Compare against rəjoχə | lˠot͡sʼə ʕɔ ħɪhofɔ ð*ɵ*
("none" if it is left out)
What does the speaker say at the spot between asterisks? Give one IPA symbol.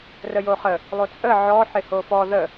ə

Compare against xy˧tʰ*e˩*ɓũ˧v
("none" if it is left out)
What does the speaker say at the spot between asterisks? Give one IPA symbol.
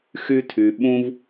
y˩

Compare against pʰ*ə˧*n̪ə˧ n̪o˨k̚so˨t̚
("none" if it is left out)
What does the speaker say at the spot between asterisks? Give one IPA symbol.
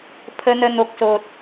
ə˧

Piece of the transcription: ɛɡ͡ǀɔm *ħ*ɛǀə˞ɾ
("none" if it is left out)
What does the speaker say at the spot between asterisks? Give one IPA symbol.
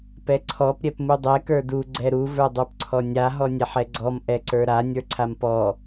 ʔ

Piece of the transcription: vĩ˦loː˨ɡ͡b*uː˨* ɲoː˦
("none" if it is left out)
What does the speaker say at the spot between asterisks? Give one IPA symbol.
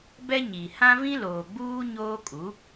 uː˦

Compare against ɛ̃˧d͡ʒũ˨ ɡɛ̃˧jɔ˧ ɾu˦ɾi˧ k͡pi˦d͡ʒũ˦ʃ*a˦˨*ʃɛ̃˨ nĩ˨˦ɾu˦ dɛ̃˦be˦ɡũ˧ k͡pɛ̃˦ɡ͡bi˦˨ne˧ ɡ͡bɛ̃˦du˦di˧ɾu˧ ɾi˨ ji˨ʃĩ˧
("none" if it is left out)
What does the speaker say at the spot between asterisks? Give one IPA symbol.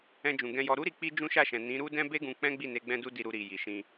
a˦˨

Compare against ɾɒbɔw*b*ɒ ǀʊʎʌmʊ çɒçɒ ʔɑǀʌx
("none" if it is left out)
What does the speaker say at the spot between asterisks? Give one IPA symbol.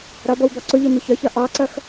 b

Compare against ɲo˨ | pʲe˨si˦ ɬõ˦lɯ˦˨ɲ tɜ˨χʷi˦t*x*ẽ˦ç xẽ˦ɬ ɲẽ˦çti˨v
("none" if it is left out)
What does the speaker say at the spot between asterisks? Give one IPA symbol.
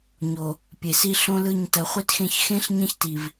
x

